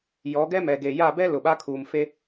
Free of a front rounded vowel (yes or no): yes